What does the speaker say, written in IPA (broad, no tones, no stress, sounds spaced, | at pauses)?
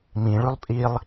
m ĩ ɭ ʉ lˠ pʼ i lˠ